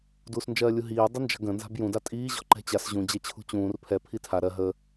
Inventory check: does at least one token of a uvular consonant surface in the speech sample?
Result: no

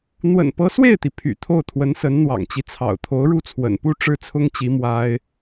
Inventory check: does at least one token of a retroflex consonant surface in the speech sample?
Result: yes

